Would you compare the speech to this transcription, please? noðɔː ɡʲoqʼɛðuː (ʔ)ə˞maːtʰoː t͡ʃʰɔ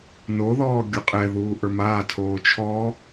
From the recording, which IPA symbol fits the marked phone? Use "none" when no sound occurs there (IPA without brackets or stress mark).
ʔ